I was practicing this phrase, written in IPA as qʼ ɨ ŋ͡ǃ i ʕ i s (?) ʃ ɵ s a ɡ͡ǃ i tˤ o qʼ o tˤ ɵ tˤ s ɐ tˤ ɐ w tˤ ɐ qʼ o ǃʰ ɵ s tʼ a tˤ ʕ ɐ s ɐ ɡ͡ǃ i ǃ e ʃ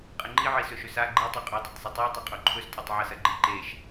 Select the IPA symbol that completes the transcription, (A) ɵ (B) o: A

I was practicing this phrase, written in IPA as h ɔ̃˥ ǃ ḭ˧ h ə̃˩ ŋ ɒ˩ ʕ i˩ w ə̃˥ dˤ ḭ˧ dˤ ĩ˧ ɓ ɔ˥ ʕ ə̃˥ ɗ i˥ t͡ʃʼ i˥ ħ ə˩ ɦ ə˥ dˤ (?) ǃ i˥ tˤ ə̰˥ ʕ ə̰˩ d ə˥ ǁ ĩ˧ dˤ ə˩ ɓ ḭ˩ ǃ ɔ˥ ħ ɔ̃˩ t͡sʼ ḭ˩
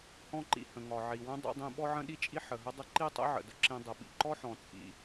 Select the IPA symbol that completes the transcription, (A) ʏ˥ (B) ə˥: B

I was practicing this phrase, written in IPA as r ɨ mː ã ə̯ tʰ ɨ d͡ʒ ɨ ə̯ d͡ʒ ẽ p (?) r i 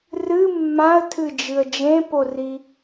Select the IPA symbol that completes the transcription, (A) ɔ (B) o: B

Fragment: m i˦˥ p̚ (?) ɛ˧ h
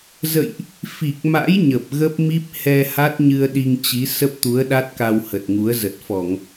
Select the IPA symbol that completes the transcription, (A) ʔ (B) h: B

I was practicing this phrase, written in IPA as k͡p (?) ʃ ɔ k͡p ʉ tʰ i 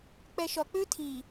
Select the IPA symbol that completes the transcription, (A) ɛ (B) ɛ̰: A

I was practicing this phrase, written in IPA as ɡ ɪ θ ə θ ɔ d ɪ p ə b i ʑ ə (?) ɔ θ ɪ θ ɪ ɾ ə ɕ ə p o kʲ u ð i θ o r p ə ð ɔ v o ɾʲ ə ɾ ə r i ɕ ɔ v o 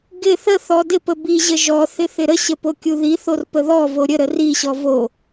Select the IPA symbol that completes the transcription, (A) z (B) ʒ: B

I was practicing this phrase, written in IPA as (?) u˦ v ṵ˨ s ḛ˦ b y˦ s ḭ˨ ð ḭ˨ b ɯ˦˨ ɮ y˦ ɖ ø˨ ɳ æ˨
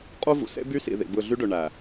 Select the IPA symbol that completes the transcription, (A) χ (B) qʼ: B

